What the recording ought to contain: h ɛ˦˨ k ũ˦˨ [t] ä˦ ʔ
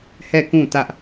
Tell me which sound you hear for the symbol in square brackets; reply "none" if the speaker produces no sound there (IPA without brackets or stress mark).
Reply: t